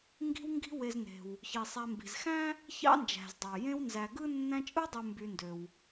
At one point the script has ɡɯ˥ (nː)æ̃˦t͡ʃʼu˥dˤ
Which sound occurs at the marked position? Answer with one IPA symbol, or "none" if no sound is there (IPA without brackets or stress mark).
nː